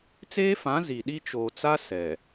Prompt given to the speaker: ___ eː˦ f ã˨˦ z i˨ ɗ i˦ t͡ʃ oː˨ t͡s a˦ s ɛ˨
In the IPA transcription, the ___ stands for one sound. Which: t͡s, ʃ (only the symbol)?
t͡s